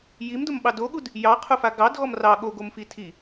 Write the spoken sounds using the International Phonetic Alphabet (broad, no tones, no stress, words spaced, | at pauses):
jimdʊmɓɑ doɠud | jɑqʰʊfa ɡɑdɣɔm rɑ ɠoɡomfi tʰi